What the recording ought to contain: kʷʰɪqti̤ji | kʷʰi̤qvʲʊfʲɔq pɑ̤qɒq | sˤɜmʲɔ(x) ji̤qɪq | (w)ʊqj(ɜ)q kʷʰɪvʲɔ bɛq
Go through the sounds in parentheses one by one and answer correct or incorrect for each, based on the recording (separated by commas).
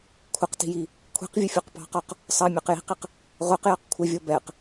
incorrect, incorrect, correct